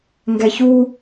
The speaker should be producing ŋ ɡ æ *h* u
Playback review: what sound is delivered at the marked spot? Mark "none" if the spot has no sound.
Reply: ç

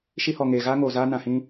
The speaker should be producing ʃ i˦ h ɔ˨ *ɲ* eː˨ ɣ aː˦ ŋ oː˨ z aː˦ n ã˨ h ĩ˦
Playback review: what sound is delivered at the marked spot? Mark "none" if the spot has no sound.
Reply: ŋ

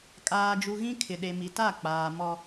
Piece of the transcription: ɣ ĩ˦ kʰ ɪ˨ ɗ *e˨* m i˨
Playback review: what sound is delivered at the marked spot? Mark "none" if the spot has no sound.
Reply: e˨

